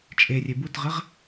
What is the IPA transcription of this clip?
t͡ʃʼ e rʲ e b u t ʁ ɪ ʁ

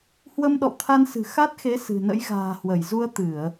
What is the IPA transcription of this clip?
h w ə˧ m ɗ ɔ̰˧˨ w t̪ʰ a˧ n s ɨ̤˨˩ x a˦˥ t̚ x e˨˦ s ɨ̤˨˩ n ə̰˧˥ j ɣ a̤ː˨˩ h w ə˧˩ j z u˧ ə̯ t̪ ɨ˧˩˨ ə̯

